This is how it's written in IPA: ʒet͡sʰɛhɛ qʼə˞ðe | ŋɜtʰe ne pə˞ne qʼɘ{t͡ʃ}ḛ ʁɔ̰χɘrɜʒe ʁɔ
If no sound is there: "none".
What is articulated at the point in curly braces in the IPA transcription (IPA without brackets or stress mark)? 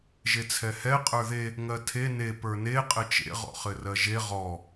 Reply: t͡ʃ